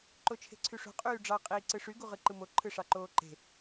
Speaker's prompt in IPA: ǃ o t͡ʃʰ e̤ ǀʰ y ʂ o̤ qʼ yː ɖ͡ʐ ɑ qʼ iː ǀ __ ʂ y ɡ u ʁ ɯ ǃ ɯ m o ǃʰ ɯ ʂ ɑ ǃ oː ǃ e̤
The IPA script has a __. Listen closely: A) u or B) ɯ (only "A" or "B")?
B